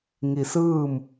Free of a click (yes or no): yes